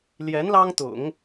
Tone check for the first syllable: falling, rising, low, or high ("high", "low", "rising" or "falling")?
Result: rising